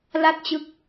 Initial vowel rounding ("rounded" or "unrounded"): unrounded